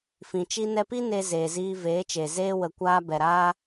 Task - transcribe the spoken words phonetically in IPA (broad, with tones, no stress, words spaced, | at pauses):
fĩ˨t͡ʃi˧nɛ˧pi˦ ne˧ zeː˨ziː˧veː˨˦t͡ʃe˨ zeː˧wə˨ kʷaː˧ bɛ˨ɾaː˧